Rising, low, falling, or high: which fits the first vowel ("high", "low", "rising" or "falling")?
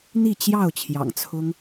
falling